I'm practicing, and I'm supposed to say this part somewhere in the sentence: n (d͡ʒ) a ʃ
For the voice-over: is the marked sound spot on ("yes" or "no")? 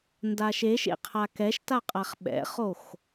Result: no